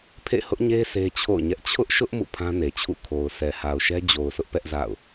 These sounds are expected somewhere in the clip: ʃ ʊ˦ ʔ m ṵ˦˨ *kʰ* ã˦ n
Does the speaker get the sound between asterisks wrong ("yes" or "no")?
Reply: yes